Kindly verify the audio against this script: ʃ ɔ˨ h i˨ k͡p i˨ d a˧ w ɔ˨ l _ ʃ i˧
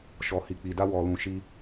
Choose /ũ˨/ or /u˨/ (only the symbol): ũ˨